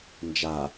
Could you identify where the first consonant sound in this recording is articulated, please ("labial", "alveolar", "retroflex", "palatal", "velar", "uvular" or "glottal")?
alveolar